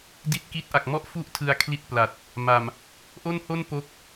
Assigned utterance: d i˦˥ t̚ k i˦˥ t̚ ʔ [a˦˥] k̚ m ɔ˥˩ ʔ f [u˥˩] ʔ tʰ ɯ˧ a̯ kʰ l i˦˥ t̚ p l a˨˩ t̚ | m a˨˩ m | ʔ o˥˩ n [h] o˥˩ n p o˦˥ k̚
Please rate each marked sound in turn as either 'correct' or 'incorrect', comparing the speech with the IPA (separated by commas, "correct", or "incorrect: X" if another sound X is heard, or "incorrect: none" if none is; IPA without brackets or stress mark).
incorrect: a˨˩, correct, correct